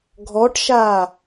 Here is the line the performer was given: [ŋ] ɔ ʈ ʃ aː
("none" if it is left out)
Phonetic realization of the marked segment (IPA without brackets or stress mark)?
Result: ɡʱ